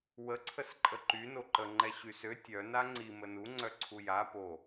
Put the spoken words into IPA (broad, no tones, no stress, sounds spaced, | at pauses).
w ə ǀʰ ə s ǃʼ ə ǃ y n o ǃ ə ŋ͡ǃ ɛ ɕ y s ø tʲ œ n a ŋ͡ǀ i m ə n u ŋ͡ǀ œ ǀʰ u j a p o